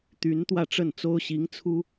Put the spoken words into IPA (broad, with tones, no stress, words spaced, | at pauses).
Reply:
t̪y˧˥n t̪wä˥˧ʈ͡ʂə˥˩nt͡so˥ʊ̯ ɕi˧˥ŋ t͡sʰu˥